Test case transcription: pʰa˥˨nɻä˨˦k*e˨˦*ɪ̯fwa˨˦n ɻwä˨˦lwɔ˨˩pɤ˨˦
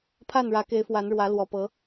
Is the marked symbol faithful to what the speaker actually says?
yes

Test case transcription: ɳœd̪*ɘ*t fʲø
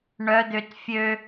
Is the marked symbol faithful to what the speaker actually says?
no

